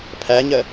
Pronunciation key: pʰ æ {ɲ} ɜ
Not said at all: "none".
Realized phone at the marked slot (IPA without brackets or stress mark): ɲ